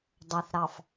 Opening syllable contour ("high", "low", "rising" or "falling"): low